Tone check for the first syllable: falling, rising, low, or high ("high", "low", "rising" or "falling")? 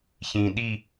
low